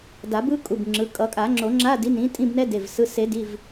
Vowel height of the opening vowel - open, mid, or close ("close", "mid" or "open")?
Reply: open